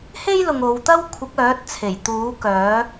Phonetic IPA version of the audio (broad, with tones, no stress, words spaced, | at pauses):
he˥jlʊ˨ŋ o˨˧w t̪ɐ˥w kʷʰɪ˨˥k̚œː˨˥t̚t͡sʰe˨˩j t̪uː˨˥kœː˨˥